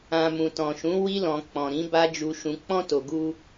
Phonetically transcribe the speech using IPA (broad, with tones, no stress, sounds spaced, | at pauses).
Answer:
ã˨ m ũ˨ t ɔ̃˨ ʃ ũ˨˦ w i˧ l ɔ̃˨ k͡p ɔ̃˨ ɾ ĩ˨˦ b a˦ d͡ʒ u˧ ʃ ũ˧ k͡p ɔ̃˧ t o˨ ɡ u˧